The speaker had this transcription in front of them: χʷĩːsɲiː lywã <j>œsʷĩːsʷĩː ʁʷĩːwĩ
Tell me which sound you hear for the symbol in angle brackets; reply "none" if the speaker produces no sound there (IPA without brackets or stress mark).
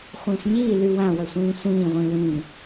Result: w